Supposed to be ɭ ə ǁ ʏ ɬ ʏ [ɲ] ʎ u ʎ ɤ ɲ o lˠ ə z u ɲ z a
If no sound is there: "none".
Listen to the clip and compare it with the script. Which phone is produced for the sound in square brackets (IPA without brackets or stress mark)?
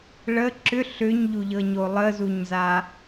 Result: ɲ